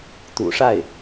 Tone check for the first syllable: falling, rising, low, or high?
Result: low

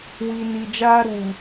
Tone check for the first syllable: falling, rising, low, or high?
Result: low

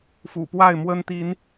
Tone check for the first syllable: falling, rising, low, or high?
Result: low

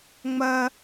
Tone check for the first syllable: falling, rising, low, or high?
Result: high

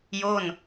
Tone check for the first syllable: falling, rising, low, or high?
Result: falling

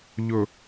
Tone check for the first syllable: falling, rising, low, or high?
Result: low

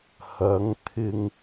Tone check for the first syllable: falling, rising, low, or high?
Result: rising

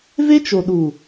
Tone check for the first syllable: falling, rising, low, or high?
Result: high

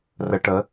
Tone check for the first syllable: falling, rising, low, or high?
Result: low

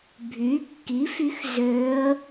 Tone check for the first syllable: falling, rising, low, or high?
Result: rising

